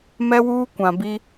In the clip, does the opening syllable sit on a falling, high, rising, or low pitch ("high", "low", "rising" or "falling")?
high